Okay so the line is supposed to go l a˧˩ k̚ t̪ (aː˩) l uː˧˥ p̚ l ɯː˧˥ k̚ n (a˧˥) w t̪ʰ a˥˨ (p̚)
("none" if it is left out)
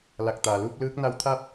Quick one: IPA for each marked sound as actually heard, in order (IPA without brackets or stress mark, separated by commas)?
aː˩, a˧˥, p̚